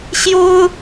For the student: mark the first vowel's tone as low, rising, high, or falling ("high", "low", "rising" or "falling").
high